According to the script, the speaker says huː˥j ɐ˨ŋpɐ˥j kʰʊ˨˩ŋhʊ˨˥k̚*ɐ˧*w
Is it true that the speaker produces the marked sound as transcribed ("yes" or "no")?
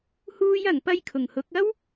no